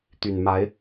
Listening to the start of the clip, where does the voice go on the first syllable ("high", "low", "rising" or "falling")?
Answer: low